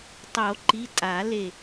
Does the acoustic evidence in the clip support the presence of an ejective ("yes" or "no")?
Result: yes